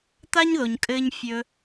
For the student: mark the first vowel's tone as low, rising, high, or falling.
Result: high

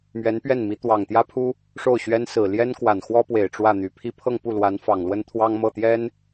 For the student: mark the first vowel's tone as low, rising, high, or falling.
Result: rising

